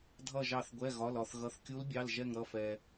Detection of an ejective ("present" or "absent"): absent